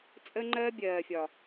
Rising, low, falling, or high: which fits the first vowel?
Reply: high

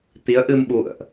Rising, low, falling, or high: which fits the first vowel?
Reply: rising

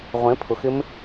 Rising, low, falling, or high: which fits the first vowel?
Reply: rising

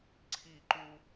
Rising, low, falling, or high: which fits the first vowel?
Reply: falling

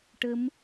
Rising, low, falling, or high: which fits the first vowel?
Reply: rising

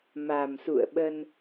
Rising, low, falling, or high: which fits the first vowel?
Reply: low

